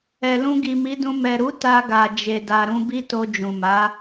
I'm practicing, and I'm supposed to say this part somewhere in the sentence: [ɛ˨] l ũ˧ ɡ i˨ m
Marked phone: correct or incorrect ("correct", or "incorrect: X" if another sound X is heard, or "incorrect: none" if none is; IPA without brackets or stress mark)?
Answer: correct